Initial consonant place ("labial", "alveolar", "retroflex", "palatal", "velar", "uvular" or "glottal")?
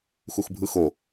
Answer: velar